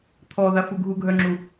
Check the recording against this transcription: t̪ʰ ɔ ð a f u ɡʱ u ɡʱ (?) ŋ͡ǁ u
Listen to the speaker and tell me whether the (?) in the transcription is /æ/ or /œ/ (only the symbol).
œ